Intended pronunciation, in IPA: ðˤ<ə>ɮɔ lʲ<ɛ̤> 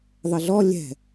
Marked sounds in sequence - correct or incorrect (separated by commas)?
correct, correct